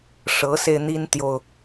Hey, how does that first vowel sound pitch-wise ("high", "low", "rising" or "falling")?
rising